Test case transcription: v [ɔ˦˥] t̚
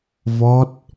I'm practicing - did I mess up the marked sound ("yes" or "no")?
no